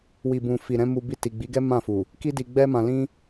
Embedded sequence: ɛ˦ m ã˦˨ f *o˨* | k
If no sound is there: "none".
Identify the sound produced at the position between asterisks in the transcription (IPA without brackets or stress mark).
u˨